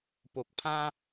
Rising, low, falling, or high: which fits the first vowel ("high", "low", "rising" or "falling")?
low